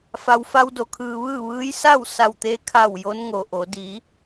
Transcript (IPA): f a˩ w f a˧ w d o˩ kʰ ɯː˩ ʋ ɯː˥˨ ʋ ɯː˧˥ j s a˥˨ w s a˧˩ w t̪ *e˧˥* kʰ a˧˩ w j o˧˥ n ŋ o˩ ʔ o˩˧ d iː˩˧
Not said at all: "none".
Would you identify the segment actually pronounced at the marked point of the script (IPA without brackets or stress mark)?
e˧